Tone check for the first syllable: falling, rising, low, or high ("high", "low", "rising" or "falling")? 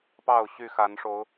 falling